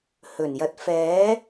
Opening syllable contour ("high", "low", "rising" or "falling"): low